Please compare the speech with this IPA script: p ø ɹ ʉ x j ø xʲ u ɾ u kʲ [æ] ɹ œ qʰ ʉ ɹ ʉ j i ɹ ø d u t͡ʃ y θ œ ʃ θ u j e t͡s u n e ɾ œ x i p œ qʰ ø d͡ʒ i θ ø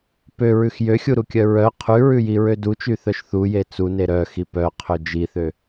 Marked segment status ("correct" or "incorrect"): incorrect